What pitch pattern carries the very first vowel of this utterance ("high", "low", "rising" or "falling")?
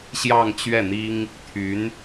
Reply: falling